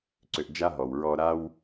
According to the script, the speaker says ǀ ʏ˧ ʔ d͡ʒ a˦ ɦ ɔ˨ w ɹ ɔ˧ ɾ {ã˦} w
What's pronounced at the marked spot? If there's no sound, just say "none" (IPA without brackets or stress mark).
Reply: a˦